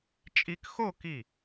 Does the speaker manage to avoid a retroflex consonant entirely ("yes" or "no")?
yes